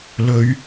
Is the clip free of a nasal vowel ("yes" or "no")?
yes